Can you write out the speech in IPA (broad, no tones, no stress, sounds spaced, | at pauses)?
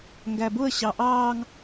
ŋ ɡ æ b ʊ ə̯ ɕ ɑ ʔ ɑː ŋ